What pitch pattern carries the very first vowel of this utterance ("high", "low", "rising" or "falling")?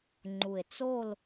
low